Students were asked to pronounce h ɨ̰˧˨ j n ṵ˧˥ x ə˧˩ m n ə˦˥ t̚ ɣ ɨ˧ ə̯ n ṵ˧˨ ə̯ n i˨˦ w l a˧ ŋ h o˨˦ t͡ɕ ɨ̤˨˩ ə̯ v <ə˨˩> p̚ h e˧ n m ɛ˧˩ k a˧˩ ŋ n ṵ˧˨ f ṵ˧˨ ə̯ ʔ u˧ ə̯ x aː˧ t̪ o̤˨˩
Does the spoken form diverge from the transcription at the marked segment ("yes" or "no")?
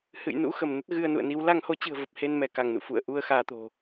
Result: no